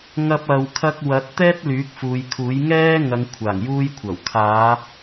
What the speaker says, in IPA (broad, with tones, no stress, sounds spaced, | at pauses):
ŋ ɐ˥ p̚ ɐ˧ w kʰ ɐ˥ k̚ w ɐ˨˥ t̚ t̪ ɛː˥ t̚ l yː˨˥ k̚ f uː˨˧ j kʰ uː˨˥ j ŋ ɛː˥ ŋ ɐ˨˧ ŋ kʷʰ aː˨˩ ŋ j uː˧ j kʷʰ ɐ˨˩ w kʰ aː˨˧